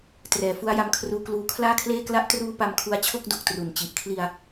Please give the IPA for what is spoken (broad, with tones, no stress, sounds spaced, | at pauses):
t r ɛː˨˩ f u˦˥ a̯ j a˧ m kʰ r uː˧ k l uː˦˥ kʰ l aː˥˩ kʰ l eː˥˩ k l a˦˥ ʔ t r uː˦˥ p a˧ m kʰ u˧ a̯ t͡ɕʰ o˥˩ k̚ d o˨˩ k̚ t r u˩˦ n t͡ɕ i˨˩ ʔ kʰ l i˧ a̯